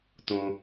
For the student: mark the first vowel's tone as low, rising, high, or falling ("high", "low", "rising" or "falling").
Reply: high